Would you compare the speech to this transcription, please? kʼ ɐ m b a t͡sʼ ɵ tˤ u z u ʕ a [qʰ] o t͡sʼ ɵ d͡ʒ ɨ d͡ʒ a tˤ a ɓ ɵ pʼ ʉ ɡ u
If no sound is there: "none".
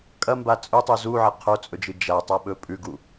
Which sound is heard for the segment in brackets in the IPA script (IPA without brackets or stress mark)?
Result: qʰ